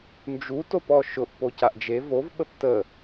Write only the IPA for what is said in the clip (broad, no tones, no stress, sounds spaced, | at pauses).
n d͡ʒ u t o p ɔ ʃ ʊ ʔ p o c a ʔ d͡ʒ e v o v ɓ ə p t ə